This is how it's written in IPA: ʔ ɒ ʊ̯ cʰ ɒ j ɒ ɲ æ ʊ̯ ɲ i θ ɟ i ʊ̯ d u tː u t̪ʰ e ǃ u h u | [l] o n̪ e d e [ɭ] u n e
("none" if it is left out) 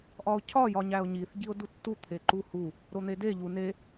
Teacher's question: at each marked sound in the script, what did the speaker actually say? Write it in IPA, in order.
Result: ɾ, ʎ

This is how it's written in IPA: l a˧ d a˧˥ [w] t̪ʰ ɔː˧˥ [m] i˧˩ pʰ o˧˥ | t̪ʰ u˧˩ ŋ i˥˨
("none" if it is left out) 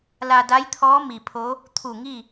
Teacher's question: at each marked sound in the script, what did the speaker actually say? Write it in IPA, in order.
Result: j, m

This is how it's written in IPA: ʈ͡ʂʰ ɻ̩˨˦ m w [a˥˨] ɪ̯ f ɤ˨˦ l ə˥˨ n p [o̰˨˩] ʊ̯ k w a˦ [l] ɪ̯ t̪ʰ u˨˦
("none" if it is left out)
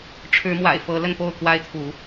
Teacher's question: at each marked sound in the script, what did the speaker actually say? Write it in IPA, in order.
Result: a̰˨˩, o˥˨, none

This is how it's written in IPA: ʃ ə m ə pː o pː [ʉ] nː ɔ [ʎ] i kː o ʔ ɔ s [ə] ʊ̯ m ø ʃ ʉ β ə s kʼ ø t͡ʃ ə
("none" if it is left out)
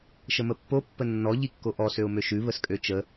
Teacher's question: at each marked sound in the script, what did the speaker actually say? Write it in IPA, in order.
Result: ə, ʎ, ø

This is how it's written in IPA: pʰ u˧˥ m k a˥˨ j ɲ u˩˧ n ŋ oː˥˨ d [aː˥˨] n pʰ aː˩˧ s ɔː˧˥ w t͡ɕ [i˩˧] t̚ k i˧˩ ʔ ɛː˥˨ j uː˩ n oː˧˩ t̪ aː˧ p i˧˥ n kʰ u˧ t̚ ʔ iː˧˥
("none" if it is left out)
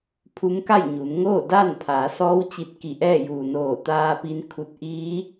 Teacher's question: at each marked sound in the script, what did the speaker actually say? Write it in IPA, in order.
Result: aː˥˨, i˧

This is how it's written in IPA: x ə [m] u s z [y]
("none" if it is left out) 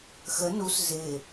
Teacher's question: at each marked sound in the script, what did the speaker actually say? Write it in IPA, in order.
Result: n, ɪ

